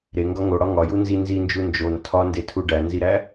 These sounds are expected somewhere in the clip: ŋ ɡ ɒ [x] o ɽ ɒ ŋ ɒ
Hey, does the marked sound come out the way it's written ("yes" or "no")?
no